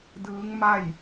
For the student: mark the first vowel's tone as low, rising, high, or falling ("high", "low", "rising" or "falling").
rising